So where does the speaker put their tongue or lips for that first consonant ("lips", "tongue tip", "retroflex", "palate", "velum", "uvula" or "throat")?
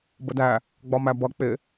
lips